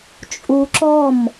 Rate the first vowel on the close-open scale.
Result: close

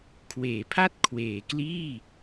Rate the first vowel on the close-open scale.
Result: mid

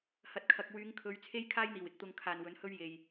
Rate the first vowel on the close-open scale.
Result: open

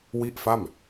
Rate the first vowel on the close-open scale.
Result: close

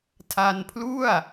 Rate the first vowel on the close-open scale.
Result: open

